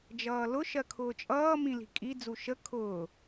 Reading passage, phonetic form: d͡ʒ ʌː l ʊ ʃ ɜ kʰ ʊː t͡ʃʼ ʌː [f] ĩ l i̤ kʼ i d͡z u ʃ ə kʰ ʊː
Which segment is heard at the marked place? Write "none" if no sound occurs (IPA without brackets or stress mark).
m